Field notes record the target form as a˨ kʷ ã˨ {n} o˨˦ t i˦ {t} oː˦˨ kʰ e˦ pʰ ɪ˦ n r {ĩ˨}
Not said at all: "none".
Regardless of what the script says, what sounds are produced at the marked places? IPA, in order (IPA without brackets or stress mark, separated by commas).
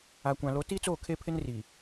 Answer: l, t͡s, i˨